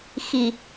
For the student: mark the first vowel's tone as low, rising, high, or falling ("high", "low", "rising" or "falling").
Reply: low